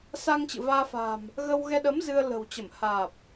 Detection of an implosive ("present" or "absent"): present